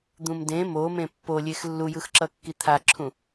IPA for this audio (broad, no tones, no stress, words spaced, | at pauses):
d̪ũmdẽ momẽ pːolʲex lːujɯxǁʌ kːit̪ʰaǁʰũ